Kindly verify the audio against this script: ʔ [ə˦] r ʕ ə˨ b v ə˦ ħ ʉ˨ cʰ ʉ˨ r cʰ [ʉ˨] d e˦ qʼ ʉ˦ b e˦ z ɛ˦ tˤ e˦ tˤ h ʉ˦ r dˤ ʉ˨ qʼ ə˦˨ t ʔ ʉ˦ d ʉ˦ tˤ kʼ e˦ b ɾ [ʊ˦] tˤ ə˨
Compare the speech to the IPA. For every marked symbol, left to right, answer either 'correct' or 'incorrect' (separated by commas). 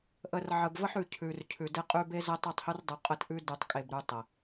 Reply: incorrect, correct, incorrect